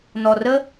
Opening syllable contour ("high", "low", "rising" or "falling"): low